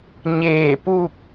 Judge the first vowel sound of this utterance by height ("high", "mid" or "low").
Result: mid